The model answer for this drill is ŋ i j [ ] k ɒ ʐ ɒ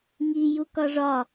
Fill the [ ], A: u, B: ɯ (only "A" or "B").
A